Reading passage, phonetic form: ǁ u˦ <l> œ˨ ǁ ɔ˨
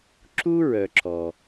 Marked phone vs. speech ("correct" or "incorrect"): incorrect